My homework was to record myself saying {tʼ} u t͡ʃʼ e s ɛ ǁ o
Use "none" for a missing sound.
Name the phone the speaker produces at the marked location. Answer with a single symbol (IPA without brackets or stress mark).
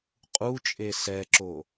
qʼ